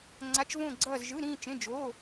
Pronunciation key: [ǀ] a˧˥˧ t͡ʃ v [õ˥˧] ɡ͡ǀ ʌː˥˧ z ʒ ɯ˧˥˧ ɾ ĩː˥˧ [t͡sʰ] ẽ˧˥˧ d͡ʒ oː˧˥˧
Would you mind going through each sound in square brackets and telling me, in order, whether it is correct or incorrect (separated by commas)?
incorrect, correct, incorrect